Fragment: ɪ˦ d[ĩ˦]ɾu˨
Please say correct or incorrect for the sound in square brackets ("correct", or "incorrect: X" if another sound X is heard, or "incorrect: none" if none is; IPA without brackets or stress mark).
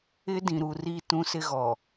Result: incorrect: ĩ˨